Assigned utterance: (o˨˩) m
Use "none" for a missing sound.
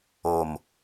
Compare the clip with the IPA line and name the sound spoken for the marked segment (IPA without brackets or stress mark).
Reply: o˨˩